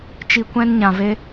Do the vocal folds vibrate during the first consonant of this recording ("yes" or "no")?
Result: no